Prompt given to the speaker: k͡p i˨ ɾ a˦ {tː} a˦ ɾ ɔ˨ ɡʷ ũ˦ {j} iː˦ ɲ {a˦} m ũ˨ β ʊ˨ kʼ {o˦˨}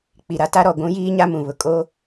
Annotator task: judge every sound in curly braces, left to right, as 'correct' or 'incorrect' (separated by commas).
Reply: incorrect, correct, correct, incorrect